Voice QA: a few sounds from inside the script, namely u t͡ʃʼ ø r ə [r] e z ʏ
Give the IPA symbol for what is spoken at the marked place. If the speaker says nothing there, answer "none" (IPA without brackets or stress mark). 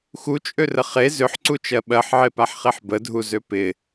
χ